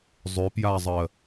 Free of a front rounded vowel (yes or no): no